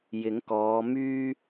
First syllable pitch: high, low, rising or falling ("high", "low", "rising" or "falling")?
rising